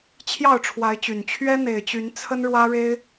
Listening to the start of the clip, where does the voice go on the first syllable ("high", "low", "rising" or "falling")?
falling